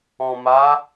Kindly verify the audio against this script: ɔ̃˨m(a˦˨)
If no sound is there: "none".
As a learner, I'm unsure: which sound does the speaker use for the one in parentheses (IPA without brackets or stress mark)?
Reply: a˨˦